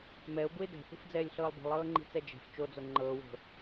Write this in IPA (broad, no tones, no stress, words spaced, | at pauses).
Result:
mɛʊ̯buɪ̯ dɛ̤θi̤fd͡zɛːlʲɬɤːlˠ bi̤lˠɤːŋ͡ǃi̤t͡sɛ d͡ʒɛ̤f t͡ʃod͡zo ŋ͡ǃɤːwo̤